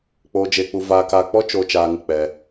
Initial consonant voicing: voiceless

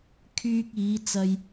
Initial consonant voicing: voiceless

